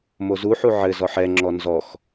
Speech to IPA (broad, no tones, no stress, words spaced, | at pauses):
mozuħu ʕɘzɔħ ɛŋ͡ǁɔ nzɔx